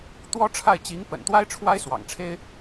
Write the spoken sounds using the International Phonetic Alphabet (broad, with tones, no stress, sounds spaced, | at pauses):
t̪ w ɔ˥ ʈ͡ʂʰ a˥˩ ɪ̯ t͡ɕ i˧˥ ŋ p ə̰˨˩ n t̪ w a˥ ɪ̯ ʈ͡ʂʰ w a˥ ɪ̯ s w ɑ̰˨˩ ŋ ʈ͡ʂʰ e˥ ɪ̯